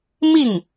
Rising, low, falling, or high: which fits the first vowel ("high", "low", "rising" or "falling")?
falling